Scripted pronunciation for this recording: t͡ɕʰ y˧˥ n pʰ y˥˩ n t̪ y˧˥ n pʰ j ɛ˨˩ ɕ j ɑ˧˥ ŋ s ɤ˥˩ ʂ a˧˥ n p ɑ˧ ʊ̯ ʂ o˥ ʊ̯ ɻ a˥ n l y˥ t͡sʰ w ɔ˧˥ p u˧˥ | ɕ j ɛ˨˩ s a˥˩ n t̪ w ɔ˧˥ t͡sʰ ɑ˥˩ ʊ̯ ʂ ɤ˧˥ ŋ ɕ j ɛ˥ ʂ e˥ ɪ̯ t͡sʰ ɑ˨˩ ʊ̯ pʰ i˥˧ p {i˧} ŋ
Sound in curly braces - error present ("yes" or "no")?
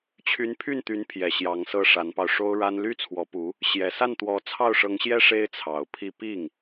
yes